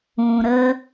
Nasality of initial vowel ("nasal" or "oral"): nasal